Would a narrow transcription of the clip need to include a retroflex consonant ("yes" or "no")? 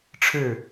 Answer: yes